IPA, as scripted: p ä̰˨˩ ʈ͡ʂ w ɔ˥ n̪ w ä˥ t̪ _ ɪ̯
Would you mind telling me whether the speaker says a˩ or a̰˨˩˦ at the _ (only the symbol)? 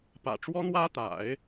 a̰˨˩˦